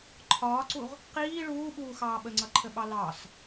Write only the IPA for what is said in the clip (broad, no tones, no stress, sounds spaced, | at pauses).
ǃʰ ɒː ǀ u ʁ | q iː ɭ uː ɓ uː x ɑː ɓ ə ŋ͡ǀ ʌ ǃʰ ə ɓ ɑ l ɑ s